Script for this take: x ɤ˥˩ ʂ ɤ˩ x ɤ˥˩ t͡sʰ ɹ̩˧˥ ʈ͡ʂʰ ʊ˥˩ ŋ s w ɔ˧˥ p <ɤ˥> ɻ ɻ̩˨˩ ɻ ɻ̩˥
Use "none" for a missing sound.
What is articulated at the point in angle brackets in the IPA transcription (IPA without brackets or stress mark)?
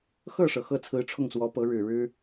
ɤ˧˥